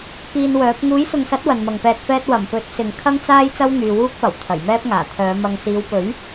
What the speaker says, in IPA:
k iː˧ n w œː˨˥ p̚ ŋ uː˨˥ j s ʊ˨ ŋ s ɐ˨˥ t̚ w ɐ˨ n m ɐ˨ ŋ p ɛː˧ t̚ f ɛː˥ t̚ w ɐ˨˩ m p ɵ˨˥ t̚ s ɪ˨ ŋ kʰ ɐ˥ ŋ t͡s aː˥ j t͡s ɐ˥ w ŋ yː˨ w uː˥ k̚ p ɐ˨˩ w t̪ʰ ɐ˨˩ j m ɛː˥ p̚ ŋ aː˨˩ t̪ʰ œː˨˧ m ɐ˨ ŋ s iː˨˧ w p ɵ˨˥ ɥ

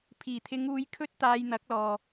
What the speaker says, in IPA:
pʰ iː˨˩ t̪ʰ ɪ˨˧ ŋ uː˨˧ j kʰ ɵ˥ t̚ t̪ aː˧ j n̪ ɐ˨˥ k̚ l ɔː˨

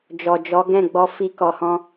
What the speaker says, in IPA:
d͡ʒ ɔ˨ d͡ʒ ɔ˨˦ ɡ ɛ̃˦˨ ɡ͡b ɔ˧ f i˧ k ɔ˨ h ɔ̃˧

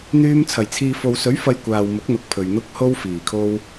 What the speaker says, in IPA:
n̪ yː˧ m t͡sʰ ɐ˨˩ j t͡sʰ iː˨ f o˨ w s ɵ˨˥ ɥ f ɐ˧ j kʷ aː˨ w m ʊ˨˥ k̚ n̪ ʊ˨ k̚ pʰ ɵ˨ ɥ n̪ ʊ˧ k̚ h o˧ w f iː˨˩ kʰ o˧ w

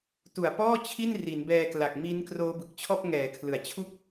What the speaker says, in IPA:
t u˨˩ a̯ p ɔː˥˩ t͡ɕʰ i˥˩ n r i˩˦ n b ɛː˧ k l a˨˩ k̚ m i˦˥ n k r oː˦˥ b ɯ˨˩ k̚ t͡ɕʰ ɔː˥˩ p̚ ŋ ɛː˩˦ kʰ l ɯ˩˦ a̯ t͡ɕʰ u˥˩ k̚

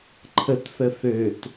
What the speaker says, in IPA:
ǃʰ ə t θ ə θ ø t

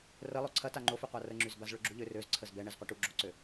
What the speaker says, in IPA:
r ə lˠ o ǀʰ ɐ t a ŋ͡ǃ o f y qʷ a r ə ŋ͡ǁ y z b a z ɭ ø ɡ͡ǁ u ʎ ø r ø z ǀʰ ə z b ɛ ɳ ɛ z qʷ ɐ ʈ u ɡ͡ǁ o ǀ ø

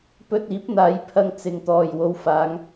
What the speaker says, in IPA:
p ɵ˧ t̚ iː˨˥ p̚ n̪ aː˨˧ j pʰ ɐ˨ ŋ t͡s ɪ˨ ŋ t̪ ɔː˨ j w o˨˧ w f aː˨˧ ŋ

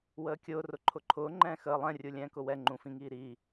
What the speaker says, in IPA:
w əː kʲ ʊː r ʊ ǃʰ ʊ ǃʰ ʊː ŋ͡ǃ ɛ̃ː x əː lˠ ɛ̃ rʲ u lʲ ɛ̃ː k ʊ w ɛ ŋ͡ǃ ũ f ĩ ŋ iː ɾ iː

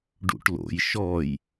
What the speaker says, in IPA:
ɖ ṵ ʈ l o̰ j ʃ ɔ j

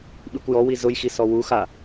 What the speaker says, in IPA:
ɓ i kʷ j ɔ w i z ʊ j x i s ɔ w u x a

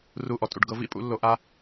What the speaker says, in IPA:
r u˦ ʔ ɔ˧ tʼ ṵ˧ ɖ ɡ ɤ˧ v ḭ˦˨ pʼ ṵ˨˦ lː o˧ ʔ a˦

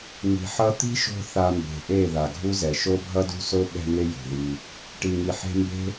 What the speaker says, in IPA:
ŋ i̤˨ ħ ʌ˦ t̪ i̤˦ ʃ o̤˧ θ a˧ m b e̤˨ ʔ e˦˨ ð a˨ ɡʱ u˦ z ɛ˨ ʃ o˦ bʱ ʌ˦ d ṳ˦ s o˦ ɓ ɛ̤˧ ŋ e˧ j o̤˨ ð i˧ | ʈ i˨ ŋ i˨ ħ e̤˧ m b e̤˦

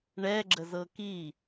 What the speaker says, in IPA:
ɳ ɛ ɡ͡ǁ ə z ɤ k i

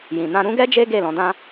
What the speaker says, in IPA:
j ĩ˨ n ã˧ ɾ ũ˧ ɡ ɛ˦ d͡ʒ e˦ ɡ e˦˨ l ɔ̃˨˦ d ã˦

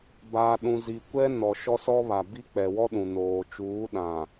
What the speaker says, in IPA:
b a˨ ɗ ũ˨ z i˨ kʷ ɛ˦ n ɔ˨ ʃ ɔ˦ s ɔ˦ β a˨ b i˦ k͡p ɛ˨ w ɔ˦ ɗ ũ˨ n oː˨ t͡ʃ uː˨˦ ɗ ã˨

